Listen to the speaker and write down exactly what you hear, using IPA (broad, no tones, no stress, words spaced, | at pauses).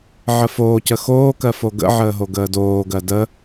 ʕəfoːcə xoːkɜ foɡə̰ʕəː ɦoɡəːdoːɡɜ də